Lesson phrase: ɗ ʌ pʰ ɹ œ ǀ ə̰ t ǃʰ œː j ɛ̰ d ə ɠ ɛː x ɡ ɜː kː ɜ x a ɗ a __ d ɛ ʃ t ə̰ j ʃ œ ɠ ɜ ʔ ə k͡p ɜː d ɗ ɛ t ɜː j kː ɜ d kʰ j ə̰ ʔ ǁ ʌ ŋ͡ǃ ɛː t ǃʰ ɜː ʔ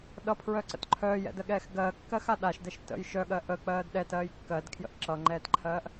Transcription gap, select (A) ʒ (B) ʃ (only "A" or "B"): B